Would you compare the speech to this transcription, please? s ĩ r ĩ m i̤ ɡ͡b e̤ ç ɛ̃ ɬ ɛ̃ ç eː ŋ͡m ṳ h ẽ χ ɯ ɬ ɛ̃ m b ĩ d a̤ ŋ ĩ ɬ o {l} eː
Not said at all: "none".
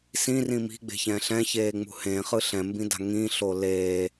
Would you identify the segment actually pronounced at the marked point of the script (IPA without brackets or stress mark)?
l